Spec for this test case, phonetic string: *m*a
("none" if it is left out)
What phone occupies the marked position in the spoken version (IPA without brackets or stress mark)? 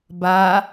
b